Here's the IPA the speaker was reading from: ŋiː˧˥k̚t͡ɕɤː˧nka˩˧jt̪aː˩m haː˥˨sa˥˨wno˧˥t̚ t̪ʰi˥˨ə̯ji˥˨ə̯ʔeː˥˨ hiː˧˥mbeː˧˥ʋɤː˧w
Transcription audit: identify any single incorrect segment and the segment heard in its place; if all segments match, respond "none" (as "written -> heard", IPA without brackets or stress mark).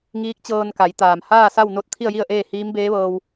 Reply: none